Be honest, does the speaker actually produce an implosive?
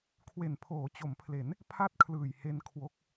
no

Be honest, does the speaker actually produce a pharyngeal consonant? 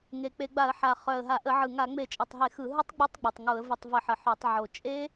yes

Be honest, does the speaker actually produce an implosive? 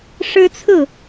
no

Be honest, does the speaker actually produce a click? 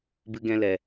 no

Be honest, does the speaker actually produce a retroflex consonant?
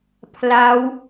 no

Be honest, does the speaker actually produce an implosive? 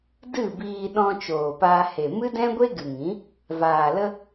yes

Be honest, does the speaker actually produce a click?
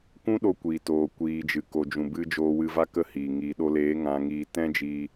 no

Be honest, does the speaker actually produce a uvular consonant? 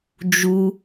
no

